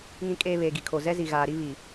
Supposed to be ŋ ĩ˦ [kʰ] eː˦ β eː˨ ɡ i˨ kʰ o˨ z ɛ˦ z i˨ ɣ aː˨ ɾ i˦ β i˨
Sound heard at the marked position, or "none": kʼ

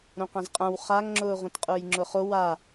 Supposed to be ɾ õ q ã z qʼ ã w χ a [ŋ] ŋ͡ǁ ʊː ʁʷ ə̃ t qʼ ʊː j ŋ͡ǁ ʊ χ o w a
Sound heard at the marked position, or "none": ŋ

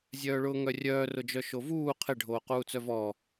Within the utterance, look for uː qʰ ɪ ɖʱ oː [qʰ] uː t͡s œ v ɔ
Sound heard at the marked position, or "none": q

